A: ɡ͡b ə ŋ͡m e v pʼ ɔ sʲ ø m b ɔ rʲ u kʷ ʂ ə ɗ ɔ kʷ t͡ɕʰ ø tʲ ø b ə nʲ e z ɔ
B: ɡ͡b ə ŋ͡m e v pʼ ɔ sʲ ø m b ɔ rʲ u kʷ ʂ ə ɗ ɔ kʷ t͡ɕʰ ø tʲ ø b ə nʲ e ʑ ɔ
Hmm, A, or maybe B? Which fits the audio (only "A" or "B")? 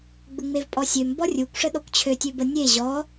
B